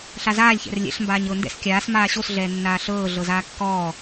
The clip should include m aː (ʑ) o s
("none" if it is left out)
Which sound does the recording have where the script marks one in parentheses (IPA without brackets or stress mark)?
ɕ